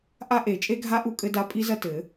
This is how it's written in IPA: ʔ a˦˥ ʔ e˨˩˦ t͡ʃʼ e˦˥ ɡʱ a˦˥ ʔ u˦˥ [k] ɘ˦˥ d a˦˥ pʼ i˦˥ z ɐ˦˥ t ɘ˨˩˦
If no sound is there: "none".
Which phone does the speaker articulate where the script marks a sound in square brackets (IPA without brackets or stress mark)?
kʼ